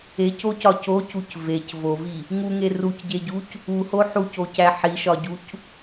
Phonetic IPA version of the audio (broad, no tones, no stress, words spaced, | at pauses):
ecocɒ cocuc vec vovi | ŋuŋe rucɟeɟuc | uho ħucocæ ħiʃɒɟuc